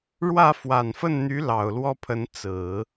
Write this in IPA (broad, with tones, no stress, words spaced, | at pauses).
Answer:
ɻwä˥˩ fwa˨˩nfə˥˩nn̪y˧˥ lɑ˨˩ʊ̯lwɔ˥pʰə˧˥n t͡sɹ̩˨˩˦